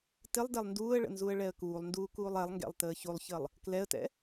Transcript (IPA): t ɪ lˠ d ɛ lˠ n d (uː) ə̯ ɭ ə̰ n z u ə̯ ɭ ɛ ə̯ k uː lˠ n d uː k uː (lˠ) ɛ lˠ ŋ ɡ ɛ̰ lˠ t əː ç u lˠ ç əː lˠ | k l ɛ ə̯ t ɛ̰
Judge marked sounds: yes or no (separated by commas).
yes, yes